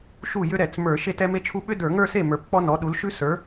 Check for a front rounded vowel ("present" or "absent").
present